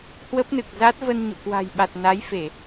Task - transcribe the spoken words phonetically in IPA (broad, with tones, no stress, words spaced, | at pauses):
hwə˦˥p̚nɨ˨˩k̚za˦˥t̚ və˧nɲo̰˧˨kwa̤˨˩jɓa˨˩t̚ na˨˦j fe˧˩˨